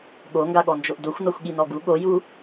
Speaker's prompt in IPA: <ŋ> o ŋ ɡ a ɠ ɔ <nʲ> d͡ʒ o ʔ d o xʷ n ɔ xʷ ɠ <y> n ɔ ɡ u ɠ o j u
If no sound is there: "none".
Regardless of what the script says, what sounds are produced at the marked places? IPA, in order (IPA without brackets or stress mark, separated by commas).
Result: ɠ, n, i